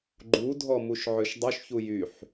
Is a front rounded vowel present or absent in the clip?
present